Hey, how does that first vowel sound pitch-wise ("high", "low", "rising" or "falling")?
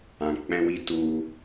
low